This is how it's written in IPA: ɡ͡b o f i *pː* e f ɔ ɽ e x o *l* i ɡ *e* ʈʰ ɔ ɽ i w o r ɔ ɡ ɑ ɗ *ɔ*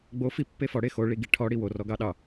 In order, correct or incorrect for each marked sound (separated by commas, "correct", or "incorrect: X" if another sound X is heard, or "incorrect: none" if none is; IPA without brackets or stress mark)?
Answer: correct, incorrect: ɭ, incorrect: i, incorrect: ɑ